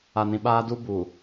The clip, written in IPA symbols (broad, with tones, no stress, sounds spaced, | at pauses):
a˨ n ĩ˨ ɓ aː˦ d u˦ b uː˨